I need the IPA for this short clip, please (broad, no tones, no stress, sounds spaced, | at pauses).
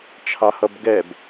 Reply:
t͡ʃʰ ɑ h ʌ b ɡ ɛ b